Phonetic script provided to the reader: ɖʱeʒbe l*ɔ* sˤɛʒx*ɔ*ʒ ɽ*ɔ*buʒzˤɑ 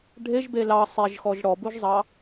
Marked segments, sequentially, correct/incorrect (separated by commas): incorrect, correct, correct